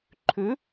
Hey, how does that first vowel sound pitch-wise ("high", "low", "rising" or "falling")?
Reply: rising